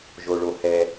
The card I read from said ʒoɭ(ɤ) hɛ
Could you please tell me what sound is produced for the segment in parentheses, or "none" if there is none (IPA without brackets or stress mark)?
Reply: o